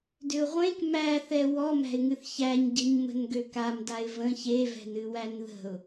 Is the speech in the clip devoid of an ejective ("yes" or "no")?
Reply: yes